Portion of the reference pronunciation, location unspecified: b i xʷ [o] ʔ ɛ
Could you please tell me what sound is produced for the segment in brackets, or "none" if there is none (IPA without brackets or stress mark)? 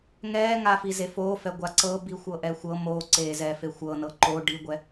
ɤ